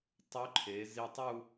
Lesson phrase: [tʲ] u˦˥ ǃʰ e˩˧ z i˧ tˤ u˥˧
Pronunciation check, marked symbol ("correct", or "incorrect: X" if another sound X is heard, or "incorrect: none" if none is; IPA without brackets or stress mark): incorrect: tˤ